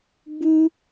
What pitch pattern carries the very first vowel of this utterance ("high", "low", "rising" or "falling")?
high